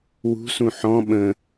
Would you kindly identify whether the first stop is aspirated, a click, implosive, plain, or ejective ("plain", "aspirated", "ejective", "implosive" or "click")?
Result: implosive